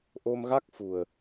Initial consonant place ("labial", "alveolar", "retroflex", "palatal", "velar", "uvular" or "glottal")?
glottal